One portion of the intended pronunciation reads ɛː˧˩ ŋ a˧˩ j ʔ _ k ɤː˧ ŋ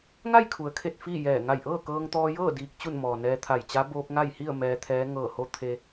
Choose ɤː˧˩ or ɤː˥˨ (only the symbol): ɤː˥˨